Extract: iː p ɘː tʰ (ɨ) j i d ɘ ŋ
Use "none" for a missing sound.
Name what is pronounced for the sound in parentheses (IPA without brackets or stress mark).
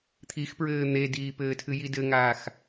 ɨ